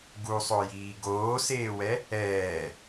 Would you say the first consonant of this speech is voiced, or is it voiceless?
voiced